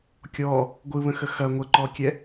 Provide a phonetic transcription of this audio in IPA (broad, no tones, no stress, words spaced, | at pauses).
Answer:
kʲɔ | ɡʷɯβə̃xə xɐ ŋʷəǃɔkʲɛ